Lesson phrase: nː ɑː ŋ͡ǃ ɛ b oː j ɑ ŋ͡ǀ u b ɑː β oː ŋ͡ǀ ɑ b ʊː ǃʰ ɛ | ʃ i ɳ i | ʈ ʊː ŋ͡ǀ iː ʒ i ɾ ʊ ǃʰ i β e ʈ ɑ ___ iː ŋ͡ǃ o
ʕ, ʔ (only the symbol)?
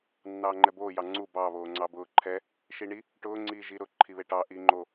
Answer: ʔ